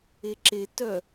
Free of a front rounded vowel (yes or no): no